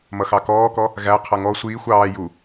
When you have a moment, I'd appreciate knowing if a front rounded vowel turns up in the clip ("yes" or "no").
no